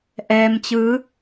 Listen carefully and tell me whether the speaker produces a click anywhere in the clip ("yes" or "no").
no